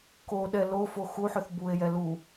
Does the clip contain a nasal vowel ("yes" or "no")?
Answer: no